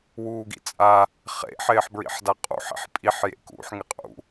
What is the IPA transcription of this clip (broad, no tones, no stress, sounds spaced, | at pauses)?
w uː ɡ ḭ t͡sʼ a | χ ḛ ħ ɪː ħ b ɹ ḭ ħ d a qʼ ṵ ħ ḭ ħ pʼ i ħ j ḛ k ṵ ħ ŋ ɪ qʼ ṵ